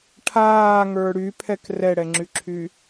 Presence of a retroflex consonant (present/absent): present